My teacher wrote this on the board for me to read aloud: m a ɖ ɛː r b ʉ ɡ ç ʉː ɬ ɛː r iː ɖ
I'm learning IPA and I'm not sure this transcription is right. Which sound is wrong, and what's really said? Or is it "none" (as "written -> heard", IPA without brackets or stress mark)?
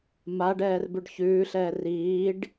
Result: ɡ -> ɖ